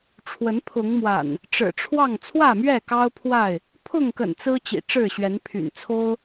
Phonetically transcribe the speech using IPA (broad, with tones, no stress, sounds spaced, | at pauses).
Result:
ʈ͡ʂʰ w ə˨˦ n pʰ ʊ˨˦ ŋ m w a̰˨˩ n | ʈ͡ʂ ɻ̩˨˩ ʈ͡ʂʰ w ɑ˥˨ ŋ t͡sʰ w ä˥˨ m ɥ ɛ˥˨ k ɑ˦ ʊ̯ pʰ w a˥˨ ɪ̯ | pʰ ʊ˥˨ ŋ k ə̰˨˩ n t͡s ɹ̩˦ t͡ɕ ḭ˨˩ ʈ͡ʂ ɻ̩˥˨ ɕ ɥ ɛ˨˦ n pʰ y̰˨˩ n t͡sʰ o˦ ʊ̯